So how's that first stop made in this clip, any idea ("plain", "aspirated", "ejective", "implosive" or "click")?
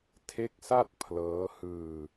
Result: aspirated